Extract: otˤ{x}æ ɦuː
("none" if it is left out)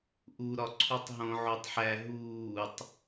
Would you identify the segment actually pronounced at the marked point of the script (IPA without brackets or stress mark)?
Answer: ħ